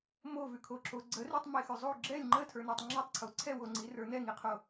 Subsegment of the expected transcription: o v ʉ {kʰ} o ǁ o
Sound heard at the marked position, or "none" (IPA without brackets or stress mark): kʰ